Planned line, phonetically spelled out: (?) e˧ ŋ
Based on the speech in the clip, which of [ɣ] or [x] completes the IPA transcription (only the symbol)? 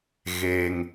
ɣ